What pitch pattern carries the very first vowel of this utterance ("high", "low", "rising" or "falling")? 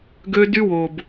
high